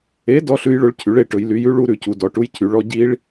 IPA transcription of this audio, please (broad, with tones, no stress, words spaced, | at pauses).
e˨˥ dɔ˦˥ɬʉ˦˥j ɭɵ˦˥ɭcʰy˨˥ɭe˦˥ʈɵ˨˥j ly˨˥jʉ˦˥ɭu˦˥ ɾʉ˨˥cu˨˥dɔ˨˥ʈu˦˥j cʰy˨˥ɭɔ˦˥ ɟi˦˥ɭ